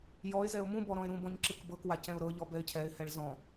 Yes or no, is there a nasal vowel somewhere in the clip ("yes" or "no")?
yes